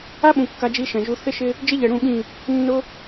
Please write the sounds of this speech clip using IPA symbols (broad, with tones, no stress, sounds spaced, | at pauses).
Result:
a˦ ɓ ũ˨ kː a˦ d͡ʒ i˦ ʃ ɛ̃˨ ʒ u˦ θ ɪ˦ ʃ ɪ˦ | d͡ʒ ɪ˦ ʎ ɛ˨ ɽ ũ˦˨ ɠ ĩ˦˨ | nː ʊ˦